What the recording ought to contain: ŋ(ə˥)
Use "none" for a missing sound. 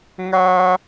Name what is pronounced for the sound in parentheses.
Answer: a˥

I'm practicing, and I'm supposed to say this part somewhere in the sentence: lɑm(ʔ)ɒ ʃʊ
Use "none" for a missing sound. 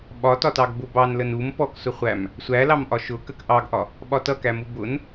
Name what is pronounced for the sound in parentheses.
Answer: ʔ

